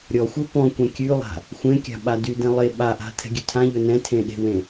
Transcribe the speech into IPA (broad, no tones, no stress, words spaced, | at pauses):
ɾʲɔxʷe pɔ̃kʷɛ̃ kʲʉlˠa̤ | xʷẽkʲa̤ ɓadydɛ̃ lˠe ɓaʔa̤ tʰɛ̤ɡʲʉtʰãʎɵ nɛ̃tʰẽ ɗe̤wẽ